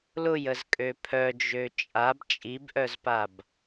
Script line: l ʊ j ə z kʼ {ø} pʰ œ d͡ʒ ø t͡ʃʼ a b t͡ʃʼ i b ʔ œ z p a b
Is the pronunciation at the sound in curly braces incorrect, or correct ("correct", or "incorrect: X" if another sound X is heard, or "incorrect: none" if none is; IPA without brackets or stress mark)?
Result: correct